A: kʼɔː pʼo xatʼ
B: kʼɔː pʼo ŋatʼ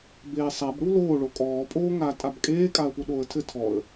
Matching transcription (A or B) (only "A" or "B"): B